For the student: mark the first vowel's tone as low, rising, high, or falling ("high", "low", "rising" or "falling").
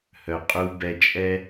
low